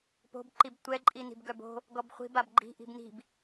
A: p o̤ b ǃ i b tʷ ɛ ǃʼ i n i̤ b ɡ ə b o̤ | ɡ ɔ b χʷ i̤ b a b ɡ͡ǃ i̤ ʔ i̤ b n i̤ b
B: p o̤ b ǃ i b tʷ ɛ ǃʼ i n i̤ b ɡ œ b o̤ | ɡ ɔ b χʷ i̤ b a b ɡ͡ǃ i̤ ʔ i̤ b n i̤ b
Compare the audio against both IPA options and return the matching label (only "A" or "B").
B